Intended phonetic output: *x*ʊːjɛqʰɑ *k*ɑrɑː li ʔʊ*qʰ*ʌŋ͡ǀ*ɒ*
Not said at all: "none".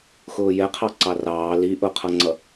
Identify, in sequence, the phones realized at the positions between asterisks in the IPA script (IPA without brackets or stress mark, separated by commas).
x, ǀ, qʰ, ʌ